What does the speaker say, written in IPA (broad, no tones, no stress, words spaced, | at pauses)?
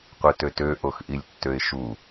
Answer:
qʷɯtøtø ʔoxʔilʲtːøɪ̯ʃu